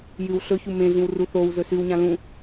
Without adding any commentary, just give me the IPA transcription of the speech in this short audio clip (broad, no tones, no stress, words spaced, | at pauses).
jɨw ɬɵçu mẽɮĩwru θow zɵsʉwɲã lũ